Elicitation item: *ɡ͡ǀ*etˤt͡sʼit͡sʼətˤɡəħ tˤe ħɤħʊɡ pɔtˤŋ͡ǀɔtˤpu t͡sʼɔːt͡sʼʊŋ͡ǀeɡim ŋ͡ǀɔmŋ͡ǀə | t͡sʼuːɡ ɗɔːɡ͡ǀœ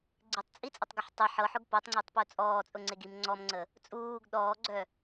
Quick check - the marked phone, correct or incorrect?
correct